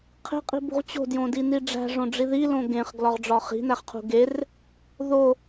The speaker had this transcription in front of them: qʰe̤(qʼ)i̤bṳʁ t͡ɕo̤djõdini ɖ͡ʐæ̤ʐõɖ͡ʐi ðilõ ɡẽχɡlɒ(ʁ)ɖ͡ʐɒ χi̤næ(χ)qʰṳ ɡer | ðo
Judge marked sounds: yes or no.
yes, yes, yes

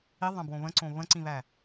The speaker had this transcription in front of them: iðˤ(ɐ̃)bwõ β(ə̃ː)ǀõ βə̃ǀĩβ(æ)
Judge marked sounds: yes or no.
yes, no, yes

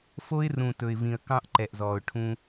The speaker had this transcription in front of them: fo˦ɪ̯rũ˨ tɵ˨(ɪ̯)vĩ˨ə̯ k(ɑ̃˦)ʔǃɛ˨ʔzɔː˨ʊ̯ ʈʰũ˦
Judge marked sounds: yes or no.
yes, yes

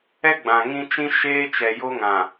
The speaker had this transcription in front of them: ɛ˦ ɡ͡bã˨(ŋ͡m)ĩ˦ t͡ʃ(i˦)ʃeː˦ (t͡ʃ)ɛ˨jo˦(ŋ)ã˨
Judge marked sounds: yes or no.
no, no, yes, yes

